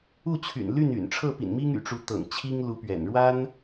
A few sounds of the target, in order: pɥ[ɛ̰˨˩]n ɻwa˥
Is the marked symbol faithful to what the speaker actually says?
yes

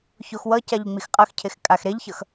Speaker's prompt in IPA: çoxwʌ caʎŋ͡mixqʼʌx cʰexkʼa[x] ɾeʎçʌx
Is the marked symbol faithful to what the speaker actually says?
yes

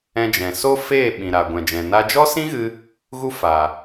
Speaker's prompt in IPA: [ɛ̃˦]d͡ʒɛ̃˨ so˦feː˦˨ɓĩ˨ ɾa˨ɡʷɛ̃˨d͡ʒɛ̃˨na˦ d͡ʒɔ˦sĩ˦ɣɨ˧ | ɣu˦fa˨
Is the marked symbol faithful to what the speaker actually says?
no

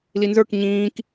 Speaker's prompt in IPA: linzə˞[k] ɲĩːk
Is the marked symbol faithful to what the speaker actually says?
yes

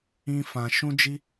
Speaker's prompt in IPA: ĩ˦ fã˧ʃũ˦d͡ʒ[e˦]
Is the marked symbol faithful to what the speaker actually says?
no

